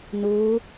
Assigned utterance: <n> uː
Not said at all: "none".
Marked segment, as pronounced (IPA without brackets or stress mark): n